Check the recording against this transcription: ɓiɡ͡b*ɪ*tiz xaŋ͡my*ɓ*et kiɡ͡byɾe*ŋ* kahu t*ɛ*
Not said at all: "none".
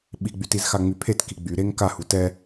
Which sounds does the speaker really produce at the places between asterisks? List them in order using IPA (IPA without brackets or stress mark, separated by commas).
y, pʰ, ŋ, ɛ